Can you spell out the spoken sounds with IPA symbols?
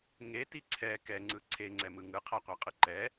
ŋ e t i ǀʰ ɛ k ɛ ŋ͡ǀ ɯ ǀʰ e ŋ͡ǀ ɛ m ɯ ŋ ɯ qʰ æ qʷ æ qʼ ɯ ǃ ɛ

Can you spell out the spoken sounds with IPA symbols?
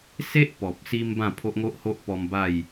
s e˦ ʔ p ɔ˨ p̚ s i˧ m b ã˥˧ pʰ o˦ ʔ ŋ o˦ ʔ h o˦ ʔ p ɔ˧ m b a˥˧ j

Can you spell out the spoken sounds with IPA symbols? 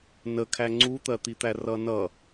n ə kʰ æ ŋ͡ǀ u t̪ ɜ t̪ i t̪ æ r ʌ n ʌ

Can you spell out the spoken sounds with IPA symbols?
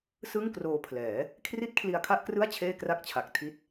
s ɯ˥˩ ŋ k r oː˧ pʰ l ɛː˩˦ | kʰ r i˥˩ t̚ kʰ l i˧ a̯ kʰ a˥˩ ʔ k r ɯ˥˩ a̯ t͡ɕʰ eː˥˩ k r a˥˩ k̚ t͡ɕʰ a˨˩ k̚ tʰ i˦˥ t̚

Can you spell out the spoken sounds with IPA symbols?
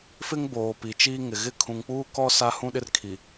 f ɪ˦ ŋ b oː˨ p i˨ t͡ʃ iː˦ ŋ ɪ˨ ɣ ɪ˦ kʰ ũ˨ ŋ k͡p uː˦ k ɔ˦ s a˦ h ũ˦ ɗ ɪ˦ r kʰ i˨

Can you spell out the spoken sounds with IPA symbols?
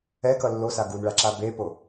ɛ k ʌ lː o s a ɡ u n ɭ a ǁ a b e p o

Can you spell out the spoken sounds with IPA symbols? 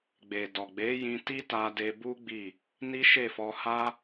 ɡ͡b e˨ d ɔ˨ ɡ͡b e˨˦ j ĩ˧ t i˦ t a˧ d e˧ b u˦ ɡ͡b i˦˨ | n i˦ ʃ e˦˨ f ɔ˧ h a˦

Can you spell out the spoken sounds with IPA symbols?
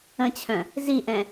ə̃ t͡ɕʰ œ̃ | z i ʔ ɛ̃

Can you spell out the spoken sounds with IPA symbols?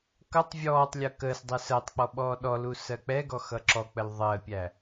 k ʌ tˤ vʲ ɔː tˤ lʲ ʌ k əː s dˤ ɛ s əː tˤ k͡p ɔ ɓ ɔː ɗ ɔ l u s ɜ k͡p ɛ ɡ ɔ x ʌ ǁ ɔ k͡p ə l ðˤ ɜ pʲ æ

